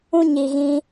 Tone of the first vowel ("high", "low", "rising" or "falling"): high